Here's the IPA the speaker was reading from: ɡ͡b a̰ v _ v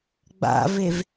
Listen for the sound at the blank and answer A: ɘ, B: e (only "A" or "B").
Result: B